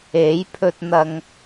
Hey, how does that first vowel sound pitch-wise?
rising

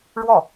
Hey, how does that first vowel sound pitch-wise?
falling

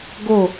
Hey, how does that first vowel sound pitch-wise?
falling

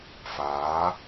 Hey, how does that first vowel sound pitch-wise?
rising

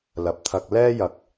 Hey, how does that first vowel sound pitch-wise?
low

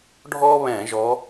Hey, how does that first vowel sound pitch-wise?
high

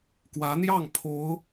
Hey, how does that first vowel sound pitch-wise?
rising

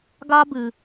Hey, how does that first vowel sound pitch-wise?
high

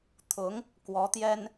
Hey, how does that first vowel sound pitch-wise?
rising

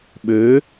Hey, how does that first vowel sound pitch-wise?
rising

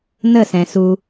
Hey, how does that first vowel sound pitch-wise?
falling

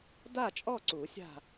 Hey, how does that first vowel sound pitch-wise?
falling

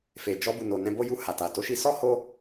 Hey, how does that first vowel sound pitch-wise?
low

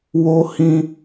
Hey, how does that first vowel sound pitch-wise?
high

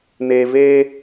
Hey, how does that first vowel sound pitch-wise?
low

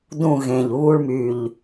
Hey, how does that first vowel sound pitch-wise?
falling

